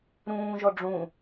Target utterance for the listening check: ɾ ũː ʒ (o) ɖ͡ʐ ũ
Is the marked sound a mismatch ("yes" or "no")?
yes